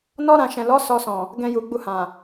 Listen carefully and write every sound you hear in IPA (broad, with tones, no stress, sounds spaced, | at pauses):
n ɔ˦ ɾ ã˧ ʃ ɛ̃˨ l ɔ˨˦ s ɔ˧ s ɔ̃˨ | ɡ ɛ̃˧ j u˨ ɡ͡b u˧ h ã˨